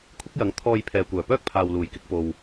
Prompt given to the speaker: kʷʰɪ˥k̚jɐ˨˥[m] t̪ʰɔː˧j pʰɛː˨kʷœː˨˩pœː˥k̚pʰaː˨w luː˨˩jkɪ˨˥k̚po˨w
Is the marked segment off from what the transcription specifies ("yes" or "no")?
yes